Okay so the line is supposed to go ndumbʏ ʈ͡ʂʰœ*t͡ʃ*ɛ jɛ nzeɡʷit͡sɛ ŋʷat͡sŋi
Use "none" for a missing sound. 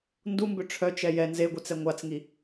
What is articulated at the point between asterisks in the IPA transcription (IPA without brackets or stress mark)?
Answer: t͡ʃ